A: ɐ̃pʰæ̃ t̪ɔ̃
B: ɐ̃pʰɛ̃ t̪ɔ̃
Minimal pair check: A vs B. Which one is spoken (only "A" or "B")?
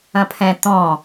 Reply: B